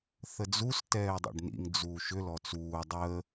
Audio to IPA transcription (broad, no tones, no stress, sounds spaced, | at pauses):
θ ə d͡z u s t ɛː dˤ ɛ̰ ɖ n ḭ ŋ d͡z uː ʃ ʏ l ɔ t͡s uː dˤ əː